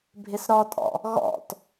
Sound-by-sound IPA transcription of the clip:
bʱɪsɾɔtʼɔ̰ | ɣɔ̰t

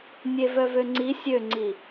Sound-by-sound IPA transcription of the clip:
nʲevœvøŋ͡ǀi sʲøŋ͡ǀi

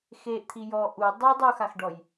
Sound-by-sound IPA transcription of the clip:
xeʔt̪ʰi jɔ ʔu dˤe dˤoxaxɖɔj

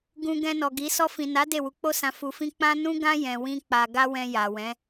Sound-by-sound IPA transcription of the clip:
ɡũ˧ ɡɛ̃˧nɔ˨ ɡi˨˦ sɔ˧fĩ˨na˨˦ de˦˨wu˨˦k͡po˦sã˧ fu˧fĩ˦ k͡pã˦ nũ˦ɡã˦ jɛ̃˧wĩ˦k͡pa˧ ɡa˦wɛ̃˧ ja˨ wɛ̃˨˦

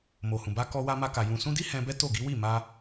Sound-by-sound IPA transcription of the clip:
mo˨hũ˨ ba˧kɔ˧wa˧ ma˧ka˨ jũ˨sũ˧di˦ hɛ̃˧bɛ˦ to˦˨ ɡi˨˦wi˦˨ ma˧

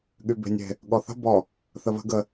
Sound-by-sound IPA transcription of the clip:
ɠybe̤nʲe̤ | ɠɔθə̤ bɔ | θəβə̤ ɡə

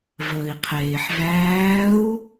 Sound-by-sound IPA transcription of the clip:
vəːi̯qʰeːħvæːu̯

